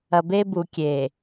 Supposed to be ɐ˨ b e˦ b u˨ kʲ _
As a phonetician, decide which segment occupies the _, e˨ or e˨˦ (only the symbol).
e˨